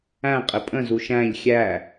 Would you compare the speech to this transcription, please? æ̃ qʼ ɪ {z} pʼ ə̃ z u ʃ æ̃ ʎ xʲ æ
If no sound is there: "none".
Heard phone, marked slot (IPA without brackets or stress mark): none